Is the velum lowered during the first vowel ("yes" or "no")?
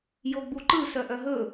no